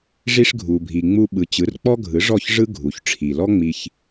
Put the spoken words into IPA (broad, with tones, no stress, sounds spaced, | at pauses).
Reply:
ʐ i˧ ʂ ɡʱ u˩ bʱ i˩ ŋ͡m u˧ ɓ ɯ˩ t͡ɕ ɯ˩˥ r k͡p ɔ˥ ɡʱ ɯ˩˥ ʐ ɔ˥˩ ç ʐ ɯ˥ ɡʱ u˩ ç ʈ͡ʂʰ i˩ l ɔ˥ ŋ͡m i˧ ç